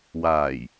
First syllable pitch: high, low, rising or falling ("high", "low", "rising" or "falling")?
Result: low